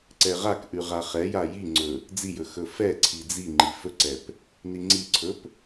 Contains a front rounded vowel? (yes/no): no